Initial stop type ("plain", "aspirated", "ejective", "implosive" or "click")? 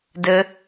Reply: plain